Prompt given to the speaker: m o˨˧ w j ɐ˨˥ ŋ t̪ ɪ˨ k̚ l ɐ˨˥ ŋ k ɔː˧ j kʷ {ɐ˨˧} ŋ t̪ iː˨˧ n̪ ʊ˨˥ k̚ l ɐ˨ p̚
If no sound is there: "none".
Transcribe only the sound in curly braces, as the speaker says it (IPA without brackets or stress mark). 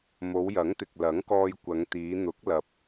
ɐ˨˧